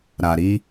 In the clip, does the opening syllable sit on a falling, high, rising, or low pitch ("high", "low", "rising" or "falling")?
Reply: low